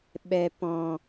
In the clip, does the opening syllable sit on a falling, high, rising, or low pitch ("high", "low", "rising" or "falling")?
low